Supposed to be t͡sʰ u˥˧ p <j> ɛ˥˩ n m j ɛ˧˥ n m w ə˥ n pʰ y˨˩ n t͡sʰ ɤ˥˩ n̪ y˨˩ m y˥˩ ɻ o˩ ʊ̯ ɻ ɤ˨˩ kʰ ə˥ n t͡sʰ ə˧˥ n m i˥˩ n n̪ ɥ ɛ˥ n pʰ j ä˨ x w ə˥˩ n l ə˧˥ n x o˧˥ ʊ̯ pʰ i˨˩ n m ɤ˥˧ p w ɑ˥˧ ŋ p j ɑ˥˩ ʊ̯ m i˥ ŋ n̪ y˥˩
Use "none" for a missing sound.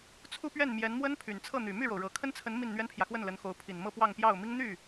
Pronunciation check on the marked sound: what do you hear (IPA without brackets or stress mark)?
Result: ɥ